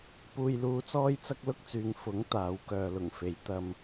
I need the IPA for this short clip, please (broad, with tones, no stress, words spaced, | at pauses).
puː˧jluː˧t͡sɔː˥jt͡sɐ˥k̚ lʊ˥k̚t͡syː˨ŋ fʊ˨˥ŋ t̪aː˨˥w kœː˨lʊ˨˩ŋfe˨˥j t̪ɐ˥m